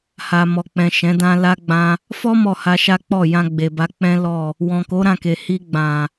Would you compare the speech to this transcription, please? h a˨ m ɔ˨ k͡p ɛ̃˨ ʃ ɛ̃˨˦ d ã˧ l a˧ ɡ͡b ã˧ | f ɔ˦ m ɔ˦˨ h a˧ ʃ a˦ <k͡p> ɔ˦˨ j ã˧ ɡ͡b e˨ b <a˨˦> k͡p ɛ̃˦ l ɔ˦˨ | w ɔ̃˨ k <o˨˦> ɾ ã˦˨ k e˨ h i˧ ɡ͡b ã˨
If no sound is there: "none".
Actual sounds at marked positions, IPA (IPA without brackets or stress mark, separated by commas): k͡p, a˨˦, o˨˦